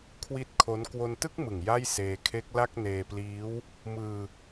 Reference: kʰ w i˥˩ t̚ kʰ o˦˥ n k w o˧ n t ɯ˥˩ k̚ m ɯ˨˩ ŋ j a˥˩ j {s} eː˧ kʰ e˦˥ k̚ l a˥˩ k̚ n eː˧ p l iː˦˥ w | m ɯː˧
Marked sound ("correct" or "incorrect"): correct